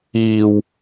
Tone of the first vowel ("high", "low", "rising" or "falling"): low